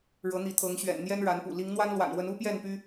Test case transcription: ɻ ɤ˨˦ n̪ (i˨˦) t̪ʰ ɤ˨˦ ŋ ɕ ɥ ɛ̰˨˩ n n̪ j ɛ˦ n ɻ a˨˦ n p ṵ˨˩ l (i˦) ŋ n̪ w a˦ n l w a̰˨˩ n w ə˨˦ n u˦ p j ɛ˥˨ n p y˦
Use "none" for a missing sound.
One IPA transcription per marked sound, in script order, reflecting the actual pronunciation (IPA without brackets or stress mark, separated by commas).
i˨˦, i˨˦